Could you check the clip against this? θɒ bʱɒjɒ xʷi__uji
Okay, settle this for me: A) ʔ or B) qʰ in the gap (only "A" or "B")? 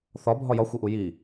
A